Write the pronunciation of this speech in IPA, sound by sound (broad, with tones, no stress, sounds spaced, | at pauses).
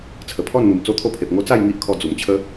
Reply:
t͡sʰ ə˨˩ pʰ ɔ˥˧ n n̪ u˨˩ m t͡s o˥˧ t̪ʰ o˥˧ pʰ e˨ p̚ ŋ o˦ t͡s a˥˧ j ŋ i˦ ʔ kʰ ɔ˧ d͡z u˨˩ m t͡ɕʰ ə˦